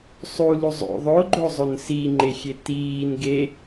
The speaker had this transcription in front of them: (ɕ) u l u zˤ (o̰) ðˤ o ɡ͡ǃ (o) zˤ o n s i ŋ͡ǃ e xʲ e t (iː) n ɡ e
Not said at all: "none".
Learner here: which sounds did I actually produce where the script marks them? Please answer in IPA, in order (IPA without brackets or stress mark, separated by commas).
sˤ, o̰, o, iː